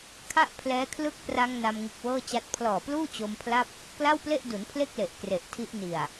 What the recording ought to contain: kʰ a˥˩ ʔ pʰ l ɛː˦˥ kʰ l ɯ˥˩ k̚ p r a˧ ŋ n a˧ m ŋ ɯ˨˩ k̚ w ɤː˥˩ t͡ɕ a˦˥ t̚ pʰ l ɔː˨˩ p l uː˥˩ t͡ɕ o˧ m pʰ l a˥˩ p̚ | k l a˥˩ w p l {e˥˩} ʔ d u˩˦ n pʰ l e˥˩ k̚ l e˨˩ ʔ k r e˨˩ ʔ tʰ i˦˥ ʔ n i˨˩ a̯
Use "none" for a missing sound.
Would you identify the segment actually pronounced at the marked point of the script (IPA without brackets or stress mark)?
e˥˩